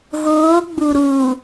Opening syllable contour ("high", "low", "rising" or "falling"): rising